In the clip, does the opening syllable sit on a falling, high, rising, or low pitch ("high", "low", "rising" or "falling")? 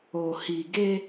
low